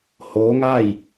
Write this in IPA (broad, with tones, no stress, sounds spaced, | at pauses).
h oː˧˥ ŋ a˥˨ j